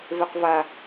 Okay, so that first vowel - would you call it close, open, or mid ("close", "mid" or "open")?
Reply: mid